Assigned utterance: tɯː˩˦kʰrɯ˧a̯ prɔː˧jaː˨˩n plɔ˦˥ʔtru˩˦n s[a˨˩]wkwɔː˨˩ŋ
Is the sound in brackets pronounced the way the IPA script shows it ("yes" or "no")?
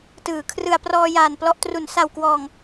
yes